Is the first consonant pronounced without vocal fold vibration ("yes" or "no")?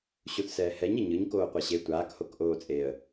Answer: yes